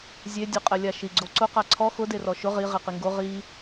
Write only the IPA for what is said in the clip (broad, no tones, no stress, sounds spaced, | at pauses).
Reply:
zʲ e dʲ ʊ qʼ ɛ lʲ a ʃ i ɡ͡ǀ o ǀ ʊ q a ǀʰ ɔ x ʊ d e r ɔ ʃ ʊ ʁ i ʁ i q i ŋ ɡ o ʁ i